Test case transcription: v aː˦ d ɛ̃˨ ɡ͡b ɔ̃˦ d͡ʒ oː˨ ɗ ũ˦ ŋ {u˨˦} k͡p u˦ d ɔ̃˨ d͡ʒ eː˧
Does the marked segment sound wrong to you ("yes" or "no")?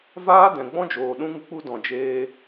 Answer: yes